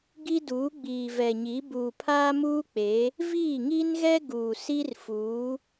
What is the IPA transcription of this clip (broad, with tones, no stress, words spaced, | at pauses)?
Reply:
ɡi˦ duː˨˦ɡ͡biː˨vɛ˨ɲi˨˦ buː˨pʰaː˦muː˦k͡pe˨˦ | viː˦˨ŋi˦nɣɛ˦ ɡuː˨si˦rfuː˨˦